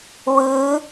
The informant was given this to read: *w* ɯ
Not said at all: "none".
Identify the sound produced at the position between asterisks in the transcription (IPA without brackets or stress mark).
w